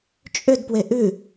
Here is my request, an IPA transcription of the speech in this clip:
t͡ʃʼ ʏ d p w e ʔ ʉ

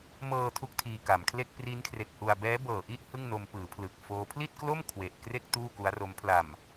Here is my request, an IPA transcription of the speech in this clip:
m ɤː˧ tʰ u˥˩ k̚ tʰ iː˧ k a˩˦ m kʰ l e˥˩ k̚ p r i˦˥ n kʰ r e˨˩ k̚ h u˧ a̯ b ɛː˦˥ b ɤː˨˩ ʔ i˥˩ ʔ h ɯ˥˩ ŋ n o˧ m p ɯː˩˦ pʰ l ɯ˨˩ k̚ f oː˦˥ pʰ l i˥˩ t̚ k l o˥˩ m kʰ w e˨˩ ʔ k r e˥˩ k̚ t uː˥˩ k u˦˥ a̯ r o˦˥ m pʰ l a˨˩ m

